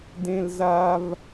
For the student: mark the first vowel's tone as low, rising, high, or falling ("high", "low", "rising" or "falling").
high